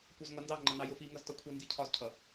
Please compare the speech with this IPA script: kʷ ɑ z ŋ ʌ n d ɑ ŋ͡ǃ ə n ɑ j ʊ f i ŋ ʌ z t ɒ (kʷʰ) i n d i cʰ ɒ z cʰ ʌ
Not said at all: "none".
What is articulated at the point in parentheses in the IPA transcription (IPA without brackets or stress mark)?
kʷʰ